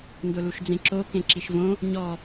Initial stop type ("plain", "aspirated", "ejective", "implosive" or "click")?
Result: plain